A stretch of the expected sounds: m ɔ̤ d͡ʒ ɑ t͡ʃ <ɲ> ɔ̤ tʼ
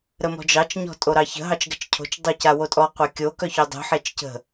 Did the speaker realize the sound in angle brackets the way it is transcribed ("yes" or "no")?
yes